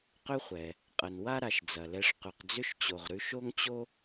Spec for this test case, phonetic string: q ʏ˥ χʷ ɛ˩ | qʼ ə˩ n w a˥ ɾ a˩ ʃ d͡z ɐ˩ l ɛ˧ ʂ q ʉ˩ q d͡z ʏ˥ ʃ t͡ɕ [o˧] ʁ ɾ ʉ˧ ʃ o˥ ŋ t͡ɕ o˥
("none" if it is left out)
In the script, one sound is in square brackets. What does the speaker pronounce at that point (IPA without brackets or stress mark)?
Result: o˩